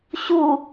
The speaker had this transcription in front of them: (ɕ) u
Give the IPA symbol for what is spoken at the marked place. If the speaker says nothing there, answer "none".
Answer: ɕ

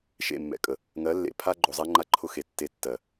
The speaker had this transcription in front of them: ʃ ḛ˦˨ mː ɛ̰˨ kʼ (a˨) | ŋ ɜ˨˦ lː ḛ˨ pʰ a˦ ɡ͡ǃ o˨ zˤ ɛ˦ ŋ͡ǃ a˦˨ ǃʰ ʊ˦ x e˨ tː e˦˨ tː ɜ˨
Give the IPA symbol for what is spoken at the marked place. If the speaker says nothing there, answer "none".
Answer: ə˨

